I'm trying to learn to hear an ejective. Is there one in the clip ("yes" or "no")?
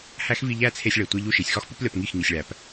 no